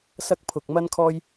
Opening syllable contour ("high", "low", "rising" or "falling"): high